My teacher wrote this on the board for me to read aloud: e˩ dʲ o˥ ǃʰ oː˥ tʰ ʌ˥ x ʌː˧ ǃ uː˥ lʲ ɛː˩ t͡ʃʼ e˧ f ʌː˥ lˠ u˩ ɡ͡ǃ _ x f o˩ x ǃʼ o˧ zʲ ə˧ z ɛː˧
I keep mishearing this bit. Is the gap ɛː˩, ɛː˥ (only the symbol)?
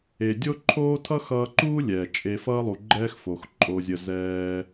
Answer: ɛː˥